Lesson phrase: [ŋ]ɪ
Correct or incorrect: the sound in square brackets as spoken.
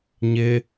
incorrect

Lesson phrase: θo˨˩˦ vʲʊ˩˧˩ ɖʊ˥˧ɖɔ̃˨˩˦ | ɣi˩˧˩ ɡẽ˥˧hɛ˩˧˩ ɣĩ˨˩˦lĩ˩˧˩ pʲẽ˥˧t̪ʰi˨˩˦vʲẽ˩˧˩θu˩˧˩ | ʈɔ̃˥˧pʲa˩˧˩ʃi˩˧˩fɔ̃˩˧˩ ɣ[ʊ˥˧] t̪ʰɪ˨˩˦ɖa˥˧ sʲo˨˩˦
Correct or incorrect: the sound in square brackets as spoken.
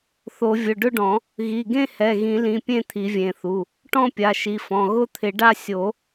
correct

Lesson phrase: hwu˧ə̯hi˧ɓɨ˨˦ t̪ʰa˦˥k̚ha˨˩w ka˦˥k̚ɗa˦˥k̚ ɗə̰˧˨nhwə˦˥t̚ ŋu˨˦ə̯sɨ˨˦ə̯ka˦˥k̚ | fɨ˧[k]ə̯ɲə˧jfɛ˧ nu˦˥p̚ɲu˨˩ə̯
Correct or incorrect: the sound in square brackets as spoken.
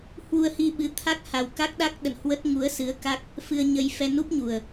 incorrect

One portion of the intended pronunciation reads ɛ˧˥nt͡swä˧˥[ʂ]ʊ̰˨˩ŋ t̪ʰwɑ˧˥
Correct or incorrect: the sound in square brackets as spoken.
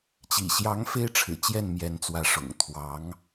correct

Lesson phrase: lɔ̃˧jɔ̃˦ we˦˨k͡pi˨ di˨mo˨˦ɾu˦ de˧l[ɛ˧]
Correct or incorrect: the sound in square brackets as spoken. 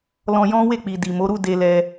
correct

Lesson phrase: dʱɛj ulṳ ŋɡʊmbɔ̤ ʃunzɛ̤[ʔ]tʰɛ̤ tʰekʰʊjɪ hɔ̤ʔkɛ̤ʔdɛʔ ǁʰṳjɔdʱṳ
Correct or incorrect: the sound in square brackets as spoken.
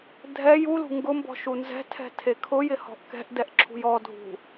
incorrect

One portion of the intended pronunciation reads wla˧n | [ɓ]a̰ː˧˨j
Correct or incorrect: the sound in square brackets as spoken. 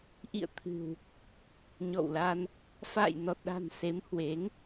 incorrect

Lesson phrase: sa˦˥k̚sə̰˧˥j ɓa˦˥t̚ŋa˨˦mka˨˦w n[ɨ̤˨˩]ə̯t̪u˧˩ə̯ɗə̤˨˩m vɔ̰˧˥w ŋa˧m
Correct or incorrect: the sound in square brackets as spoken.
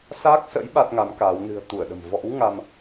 correct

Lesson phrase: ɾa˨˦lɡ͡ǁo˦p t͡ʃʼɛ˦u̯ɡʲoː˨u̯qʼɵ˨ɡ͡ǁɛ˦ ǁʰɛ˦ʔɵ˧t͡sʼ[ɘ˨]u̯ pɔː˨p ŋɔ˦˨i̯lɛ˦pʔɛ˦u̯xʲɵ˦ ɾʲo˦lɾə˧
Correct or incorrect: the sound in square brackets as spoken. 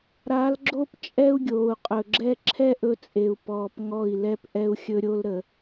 incorrect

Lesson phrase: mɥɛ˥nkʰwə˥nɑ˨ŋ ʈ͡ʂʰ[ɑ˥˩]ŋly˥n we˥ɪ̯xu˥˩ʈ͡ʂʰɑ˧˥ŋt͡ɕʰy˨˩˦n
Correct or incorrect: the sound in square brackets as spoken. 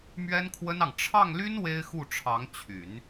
correct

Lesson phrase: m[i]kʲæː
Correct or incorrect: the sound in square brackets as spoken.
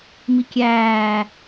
correct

